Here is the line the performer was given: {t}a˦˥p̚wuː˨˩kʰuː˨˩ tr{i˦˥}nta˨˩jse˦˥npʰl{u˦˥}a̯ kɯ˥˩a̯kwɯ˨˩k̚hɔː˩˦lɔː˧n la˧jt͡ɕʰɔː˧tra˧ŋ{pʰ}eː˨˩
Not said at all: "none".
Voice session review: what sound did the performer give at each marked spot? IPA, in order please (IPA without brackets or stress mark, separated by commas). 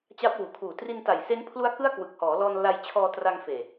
t͡ɕ, i˧, u˦˥, f